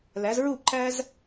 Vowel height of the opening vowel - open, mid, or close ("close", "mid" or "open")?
open